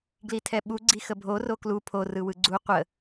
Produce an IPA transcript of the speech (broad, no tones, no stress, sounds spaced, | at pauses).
ɡ l i tʰ ɛ ɓ u ɡ͡ǀ i x ə bʱ o r o k l u pʰ o r ɯ w ɯ ɡ͡ǀ u qʷ ə